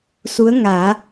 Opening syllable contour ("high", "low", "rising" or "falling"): rising